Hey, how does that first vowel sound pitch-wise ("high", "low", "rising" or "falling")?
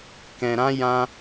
low